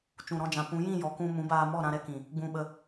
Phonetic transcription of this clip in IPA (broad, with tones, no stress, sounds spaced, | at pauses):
t͡ʃ ũ˨ ɾ ɔ̃˧ d͡ʒ ã˨ p ũ˨˦ j ĩ˦˨ j ɔ˨ k ũ˧ m ũ˨˦ b aː˧ m ɔ˦˨ ɾ ã˧ ɾ ɛ˦ k ĩ˨ | ɡ͡b ũ˧ ɓ ə˧